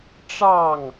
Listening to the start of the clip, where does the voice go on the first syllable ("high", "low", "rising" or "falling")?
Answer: falling